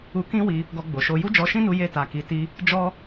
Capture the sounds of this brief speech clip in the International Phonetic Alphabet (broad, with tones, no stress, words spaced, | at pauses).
u˧kĩ˦wi˧ | ɡɔ˧ɡ͡bo˨ʃo˧ ju˦d͡ʒɔ˧ʃĩ˦nu˧ je˧ta˨ki˨ti˧ | d͡ʒɔ˦